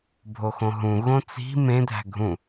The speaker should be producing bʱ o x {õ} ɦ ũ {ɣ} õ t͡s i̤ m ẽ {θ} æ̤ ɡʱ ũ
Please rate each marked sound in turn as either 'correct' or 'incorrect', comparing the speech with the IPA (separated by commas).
correct, correct, incorrect